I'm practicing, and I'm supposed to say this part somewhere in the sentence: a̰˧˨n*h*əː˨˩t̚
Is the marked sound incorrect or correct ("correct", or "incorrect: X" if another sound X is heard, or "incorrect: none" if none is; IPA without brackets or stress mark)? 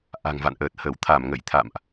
incorrect: ʔ